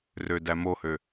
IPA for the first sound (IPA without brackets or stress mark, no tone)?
r